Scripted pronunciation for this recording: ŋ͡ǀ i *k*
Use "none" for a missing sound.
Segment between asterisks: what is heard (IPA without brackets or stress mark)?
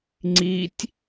tʲ